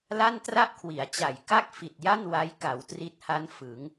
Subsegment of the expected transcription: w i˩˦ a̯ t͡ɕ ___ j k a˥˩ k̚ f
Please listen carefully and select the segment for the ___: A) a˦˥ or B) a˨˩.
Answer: B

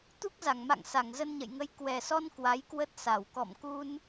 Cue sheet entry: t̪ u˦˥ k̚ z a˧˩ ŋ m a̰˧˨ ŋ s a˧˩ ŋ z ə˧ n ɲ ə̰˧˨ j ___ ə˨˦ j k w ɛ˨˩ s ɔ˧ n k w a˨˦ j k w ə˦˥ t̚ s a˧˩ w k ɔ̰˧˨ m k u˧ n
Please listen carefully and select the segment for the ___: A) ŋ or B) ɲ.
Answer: A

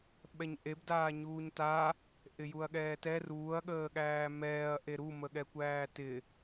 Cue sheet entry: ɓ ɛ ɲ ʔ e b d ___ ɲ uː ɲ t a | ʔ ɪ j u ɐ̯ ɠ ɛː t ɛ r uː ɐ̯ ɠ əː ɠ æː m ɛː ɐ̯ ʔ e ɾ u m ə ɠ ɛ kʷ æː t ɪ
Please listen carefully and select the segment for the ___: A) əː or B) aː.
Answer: B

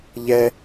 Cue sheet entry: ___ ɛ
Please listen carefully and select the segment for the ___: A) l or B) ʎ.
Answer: B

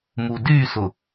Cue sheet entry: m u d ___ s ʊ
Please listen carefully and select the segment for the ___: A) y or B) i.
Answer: A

